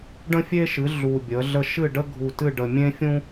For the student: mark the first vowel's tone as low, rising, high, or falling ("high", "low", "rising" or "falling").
high